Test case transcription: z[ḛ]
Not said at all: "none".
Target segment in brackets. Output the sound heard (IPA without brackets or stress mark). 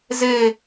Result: e